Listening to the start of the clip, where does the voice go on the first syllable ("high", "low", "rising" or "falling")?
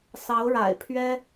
rising